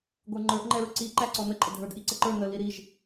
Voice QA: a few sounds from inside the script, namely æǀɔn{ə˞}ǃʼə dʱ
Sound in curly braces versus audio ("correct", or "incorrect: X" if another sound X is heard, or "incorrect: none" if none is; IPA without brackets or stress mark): incorrect: ə